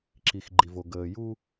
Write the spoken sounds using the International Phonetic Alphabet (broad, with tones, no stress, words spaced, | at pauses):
ǁi˨xɡ͡ǃi˨vo˨ ɡəː˨ju˦